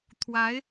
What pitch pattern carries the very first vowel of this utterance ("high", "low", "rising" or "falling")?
rising